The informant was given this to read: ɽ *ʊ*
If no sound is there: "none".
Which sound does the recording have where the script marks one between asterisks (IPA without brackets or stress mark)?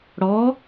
ɔ